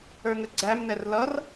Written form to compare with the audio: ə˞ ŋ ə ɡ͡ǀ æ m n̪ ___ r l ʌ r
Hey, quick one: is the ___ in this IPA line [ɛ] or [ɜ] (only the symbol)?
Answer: ɛ